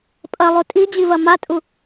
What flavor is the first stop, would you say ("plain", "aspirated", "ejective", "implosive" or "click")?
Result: ejective